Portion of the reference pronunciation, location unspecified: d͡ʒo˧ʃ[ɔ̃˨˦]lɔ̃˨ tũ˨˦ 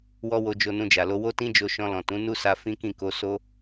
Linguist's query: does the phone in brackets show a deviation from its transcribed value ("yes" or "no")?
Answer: yes